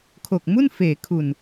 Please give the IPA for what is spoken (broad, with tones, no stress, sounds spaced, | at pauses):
kʰ o˨˩ k̚ m u˥˩ n f eː˩˦ kʰ u˨˩ n